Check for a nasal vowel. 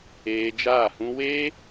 present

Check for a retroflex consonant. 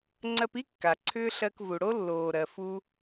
present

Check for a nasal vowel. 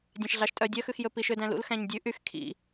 present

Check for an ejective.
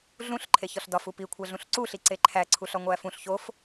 absent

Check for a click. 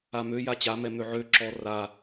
present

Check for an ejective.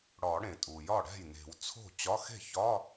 present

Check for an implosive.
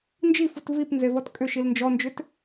absent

